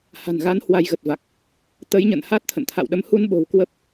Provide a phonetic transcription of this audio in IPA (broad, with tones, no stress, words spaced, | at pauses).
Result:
ha̤˨˩nɣa˨˦n hwa˧jɣə˨˩t̚va˨˩k̚ | t̪ə˨˦jɲə̰˧˨n haː˦˥t̚t̪ʰə̰˧˨nt̪ʰa̰˧˨wɗə˨˦m hu˧nɓo̤˨˩w kwə˦˥p̚